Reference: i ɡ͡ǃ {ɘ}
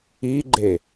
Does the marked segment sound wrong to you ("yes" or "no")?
yes